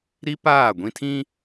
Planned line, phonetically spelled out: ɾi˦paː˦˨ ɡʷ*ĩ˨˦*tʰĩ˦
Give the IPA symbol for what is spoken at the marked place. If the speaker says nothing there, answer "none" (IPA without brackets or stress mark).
ĩ˦